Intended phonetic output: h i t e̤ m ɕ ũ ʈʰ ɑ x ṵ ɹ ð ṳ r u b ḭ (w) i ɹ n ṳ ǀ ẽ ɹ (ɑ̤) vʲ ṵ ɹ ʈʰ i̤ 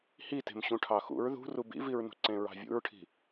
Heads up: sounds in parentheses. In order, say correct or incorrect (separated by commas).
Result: incorrect, correct